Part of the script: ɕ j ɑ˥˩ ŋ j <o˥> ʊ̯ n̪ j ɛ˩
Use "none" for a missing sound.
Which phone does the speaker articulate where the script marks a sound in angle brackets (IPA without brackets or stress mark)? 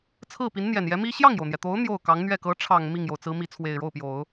o˩